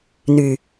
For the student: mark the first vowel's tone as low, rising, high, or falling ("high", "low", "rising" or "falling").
low